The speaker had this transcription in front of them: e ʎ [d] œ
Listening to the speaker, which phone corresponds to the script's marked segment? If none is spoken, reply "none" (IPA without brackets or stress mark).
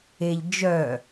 d͡ʒ